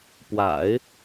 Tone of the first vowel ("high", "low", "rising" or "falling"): low